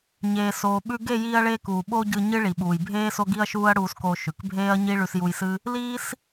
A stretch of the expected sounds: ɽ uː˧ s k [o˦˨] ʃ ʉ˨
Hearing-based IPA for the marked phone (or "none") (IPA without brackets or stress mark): o˧